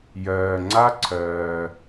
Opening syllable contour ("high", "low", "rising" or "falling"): low